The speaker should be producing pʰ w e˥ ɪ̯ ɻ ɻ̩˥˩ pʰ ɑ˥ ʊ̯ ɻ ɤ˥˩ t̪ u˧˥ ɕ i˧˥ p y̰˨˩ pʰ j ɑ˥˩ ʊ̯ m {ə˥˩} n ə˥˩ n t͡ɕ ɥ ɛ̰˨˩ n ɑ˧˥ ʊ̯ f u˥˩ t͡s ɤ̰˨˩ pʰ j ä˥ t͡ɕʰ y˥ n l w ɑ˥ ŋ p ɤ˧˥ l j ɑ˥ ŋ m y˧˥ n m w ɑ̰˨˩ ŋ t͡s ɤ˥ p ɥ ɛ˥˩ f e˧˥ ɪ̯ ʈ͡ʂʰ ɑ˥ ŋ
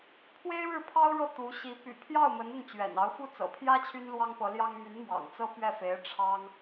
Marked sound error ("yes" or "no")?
yes